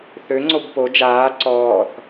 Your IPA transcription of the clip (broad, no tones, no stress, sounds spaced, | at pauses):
θ ø ŋ͡ǀ o b p o d͡ʒ aː ǀ ɔː θ